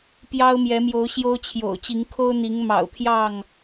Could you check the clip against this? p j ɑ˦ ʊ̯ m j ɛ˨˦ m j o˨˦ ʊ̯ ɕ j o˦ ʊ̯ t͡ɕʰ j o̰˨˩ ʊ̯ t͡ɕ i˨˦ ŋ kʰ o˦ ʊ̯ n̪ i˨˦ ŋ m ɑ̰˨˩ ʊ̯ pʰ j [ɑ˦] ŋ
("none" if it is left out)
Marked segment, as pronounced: ɑ˥˨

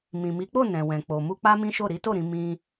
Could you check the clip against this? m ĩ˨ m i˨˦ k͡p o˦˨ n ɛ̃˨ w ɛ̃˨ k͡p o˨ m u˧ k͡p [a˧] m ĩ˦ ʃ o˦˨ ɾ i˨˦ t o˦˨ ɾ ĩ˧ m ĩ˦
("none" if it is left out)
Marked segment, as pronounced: a˦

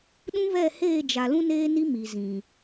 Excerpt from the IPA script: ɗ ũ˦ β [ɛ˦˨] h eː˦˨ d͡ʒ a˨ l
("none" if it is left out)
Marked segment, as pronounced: ɛ˦˨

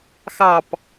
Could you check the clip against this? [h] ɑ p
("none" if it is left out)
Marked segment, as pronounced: x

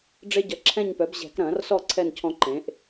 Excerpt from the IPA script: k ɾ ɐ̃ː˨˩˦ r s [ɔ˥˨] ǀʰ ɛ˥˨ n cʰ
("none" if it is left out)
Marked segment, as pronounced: ɔ˥˨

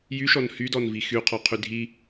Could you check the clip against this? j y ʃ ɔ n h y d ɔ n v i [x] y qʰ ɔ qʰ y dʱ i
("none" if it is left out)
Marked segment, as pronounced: x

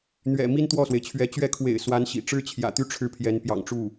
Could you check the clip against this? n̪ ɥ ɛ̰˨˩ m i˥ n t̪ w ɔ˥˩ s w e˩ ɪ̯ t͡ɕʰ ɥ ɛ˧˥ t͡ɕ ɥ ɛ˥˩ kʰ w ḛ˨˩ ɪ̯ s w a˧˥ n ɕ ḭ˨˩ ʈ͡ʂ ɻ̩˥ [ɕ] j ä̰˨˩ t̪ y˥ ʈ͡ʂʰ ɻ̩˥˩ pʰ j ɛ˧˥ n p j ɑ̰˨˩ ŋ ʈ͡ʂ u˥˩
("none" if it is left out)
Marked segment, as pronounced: t͡ɕʰ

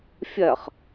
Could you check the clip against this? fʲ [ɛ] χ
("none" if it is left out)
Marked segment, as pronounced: ɛ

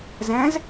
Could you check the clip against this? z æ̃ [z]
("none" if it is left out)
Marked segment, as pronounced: z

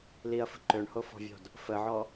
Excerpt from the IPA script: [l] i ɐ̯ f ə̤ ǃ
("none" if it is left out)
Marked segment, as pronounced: l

